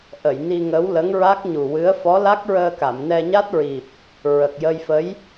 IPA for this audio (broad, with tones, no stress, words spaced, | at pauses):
ʔə˨˩˨jni˧ŋə˧˥w lə˧˥ŋɹa˦˥k̚ɲu˨˩wɨ˧˥ə̯ fɔ˧˥la˦˥k̚ɹəː˧ka˨˩˨m nɛ˧ɲa˦˥t̚ɹi˨˩p̚ | ɹə˨˩k̚jə˧jfə˧˥j